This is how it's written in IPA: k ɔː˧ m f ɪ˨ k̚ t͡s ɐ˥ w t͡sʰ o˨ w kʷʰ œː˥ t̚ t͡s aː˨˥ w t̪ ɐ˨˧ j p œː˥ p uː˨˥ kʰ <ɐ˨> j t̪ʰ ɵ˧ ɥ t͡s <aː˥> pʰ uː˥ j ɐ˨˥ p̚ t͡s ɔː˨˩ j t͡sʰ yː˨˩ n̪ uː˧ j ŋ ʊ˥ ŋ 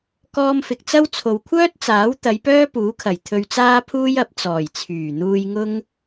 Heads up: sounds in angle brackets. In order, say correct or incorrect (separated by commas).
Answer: incorrect, correct